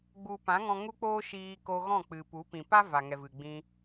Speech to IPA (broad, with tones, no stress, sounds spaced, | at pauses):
ɡ͡b u˨ p ã˨˦ ŋ ɔ̃˧ ŋ u˦ k͡p oː˦ ʃ iː˧ k o˧ ɣ ɔ̃˦˨ k͡p ɨ˨ p u˨˦ p ĩ˨ p a˦ v a˨ ŋ ɛ˨ v ɨ˨ ɡ͡b ĩ˧